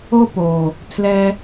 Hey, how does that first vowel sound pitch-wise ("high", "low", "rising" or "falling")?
high